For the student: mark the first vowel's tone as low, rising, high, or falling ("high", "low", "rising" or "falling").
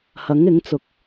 rising